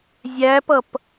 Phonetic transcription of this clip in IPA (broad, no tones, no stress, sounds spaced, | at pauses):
zʲ æ p ʌ p